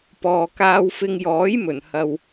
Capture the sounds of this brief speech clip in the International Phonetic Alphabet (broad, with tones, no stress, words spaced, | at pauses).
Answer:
pɔː˨kaː˧wfɪ˧ŋ jɔː˨˥jmɵ˨˩nhɐ˨w